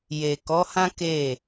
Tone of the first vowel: low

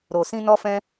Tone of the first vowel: low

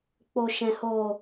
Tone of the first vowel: low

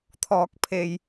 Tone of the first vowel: low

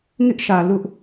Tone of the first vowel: high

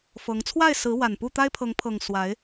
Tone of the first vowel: rising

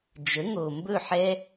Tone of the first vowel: rising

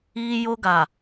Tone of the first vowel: high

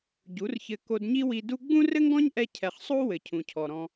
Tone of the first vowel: rising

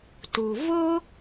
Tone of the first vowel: low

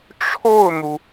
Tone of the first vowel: falling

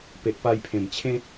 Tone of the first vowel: low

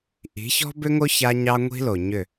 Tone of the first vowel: rising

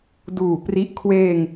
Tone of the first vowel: low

